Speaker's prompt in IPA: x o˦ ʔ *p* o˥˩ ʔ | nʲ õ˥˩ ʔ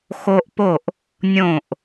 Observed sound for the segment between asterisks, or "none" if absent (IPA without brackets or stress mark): p